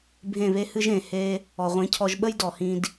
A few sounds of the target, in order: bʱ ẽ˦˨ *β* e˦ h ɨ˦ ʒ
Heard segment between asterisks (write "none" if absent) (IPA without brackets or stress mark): β